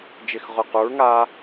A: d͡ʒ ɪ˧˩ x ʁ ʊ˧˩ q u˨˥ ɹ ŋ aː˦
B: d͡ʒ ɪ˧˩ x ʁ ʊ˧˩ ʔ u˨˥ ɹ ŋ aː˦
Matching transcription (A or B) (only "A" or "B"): A